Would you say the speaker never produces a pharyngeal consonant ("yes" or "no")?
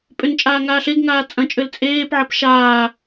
no